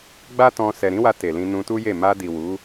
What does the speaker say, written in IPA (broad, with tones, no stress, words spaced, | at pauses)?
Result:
ɡ͡ba˦ tɔ̃˧ sɛ˨ɾĩ˨˦wa˧ te˨lĩ˧ nũ˧tu˦je˦˨ ma˧di˨ wu˨˦